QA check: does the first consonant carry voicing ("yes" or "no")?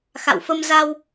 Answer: no